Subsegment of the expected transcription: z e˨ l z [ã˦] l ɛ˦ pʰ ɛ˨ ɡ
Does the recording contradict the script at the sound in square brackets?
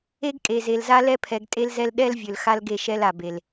yes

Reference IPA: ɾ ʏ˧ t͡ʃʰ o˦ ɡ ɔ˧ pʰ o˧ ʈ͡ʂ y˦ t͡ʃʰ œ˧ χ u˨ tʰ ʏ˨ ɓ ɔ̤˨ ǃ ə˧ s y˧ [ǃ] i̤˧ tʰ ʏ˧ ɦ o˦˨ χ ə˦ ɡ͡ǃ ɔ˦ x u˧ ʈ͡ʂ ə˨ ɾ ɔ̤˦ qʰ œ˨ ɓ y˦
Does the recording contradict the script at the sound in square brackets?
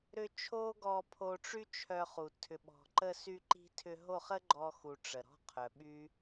no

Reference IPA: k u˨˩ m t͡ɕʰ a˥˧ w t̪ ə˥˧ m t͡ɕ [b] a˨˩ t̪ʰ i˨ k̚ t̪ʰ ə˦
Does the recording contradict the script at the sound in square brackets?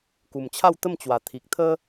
yes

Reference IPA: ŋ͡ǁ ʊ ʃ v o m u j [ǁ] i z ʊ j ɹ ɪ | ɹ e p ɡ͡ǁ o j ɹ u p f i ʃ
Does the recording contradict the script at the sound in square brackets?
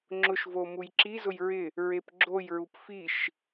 no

